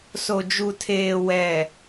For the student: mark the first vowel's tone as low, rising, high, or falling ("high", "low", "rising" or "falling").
low